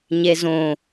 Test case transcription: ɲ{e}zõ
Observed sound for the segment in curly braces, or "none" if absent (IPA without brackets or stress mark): e